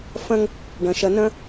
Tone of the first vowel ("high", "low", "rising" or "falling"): high